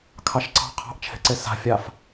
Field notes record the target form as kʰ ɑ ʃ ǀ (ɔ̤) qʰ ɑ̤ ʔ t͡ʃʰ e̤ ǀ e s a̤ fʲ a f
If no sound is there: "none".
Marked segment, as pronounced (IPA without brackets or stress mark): ɑ̤